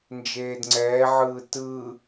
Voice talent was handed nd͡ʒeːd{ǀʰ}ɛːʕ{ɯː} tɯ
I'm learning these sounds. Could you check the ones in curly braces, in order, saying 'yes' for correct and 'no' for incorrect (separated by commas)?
no, yes